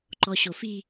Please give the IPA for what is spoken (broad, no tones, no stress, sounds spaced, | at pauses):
ǃ ɔ ɕ o f i